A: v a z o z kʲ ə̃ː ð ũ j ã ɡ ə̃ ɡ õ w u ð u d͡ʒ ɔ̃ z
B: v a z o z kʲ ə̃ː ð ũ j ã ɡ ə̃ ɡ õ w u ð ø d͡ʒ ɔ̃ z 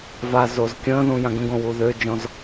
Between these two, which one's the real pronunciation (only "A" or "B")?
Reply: B